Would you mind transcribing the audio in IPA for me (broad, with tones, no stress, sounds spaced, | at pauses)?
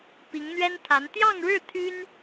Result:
p i˧˥ ŋ n̪ ɥ ɛ˥ n t̪ʰ a˧˥ n t̪ j ɑ˥˧ ŋ ɻ ɻ̩˥˩ t̪ʰ y˥ n